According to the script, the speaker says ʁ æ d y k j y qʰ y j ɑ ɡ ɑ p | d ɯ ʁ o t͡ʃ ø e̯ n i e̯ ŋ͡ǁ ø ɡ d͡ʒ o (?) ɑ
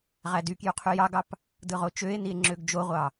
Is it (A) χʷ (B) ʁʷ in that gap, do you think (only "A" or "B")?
B